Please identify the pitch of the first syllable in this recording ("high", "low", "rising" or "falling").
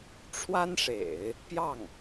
high